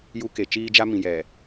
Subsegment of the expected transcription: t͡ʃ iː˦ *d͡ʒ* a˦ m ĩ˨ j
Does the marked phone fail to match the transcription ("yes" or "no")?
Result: no